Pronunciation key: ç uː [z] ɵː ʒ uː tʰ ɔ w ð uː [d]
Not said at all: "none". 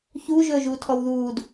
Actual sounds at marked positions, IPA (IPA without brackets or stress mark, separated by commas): ʒ, d